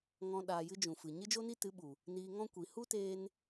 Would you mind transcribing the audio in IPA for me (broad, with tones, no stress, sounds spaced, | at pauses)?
ŋ ɔ̃˧ ɗ aː˧ j ɨ˦ d͡ʒ ũ˨ f ɨ˨ ɲ ɨ˦ d͡ʒ o˦ n i˦ t ɨ˨˦ ɓ u˨ | n iː˧ ŋ ɔ̃˦ kʷ i˨ h u˦ t eː˧ n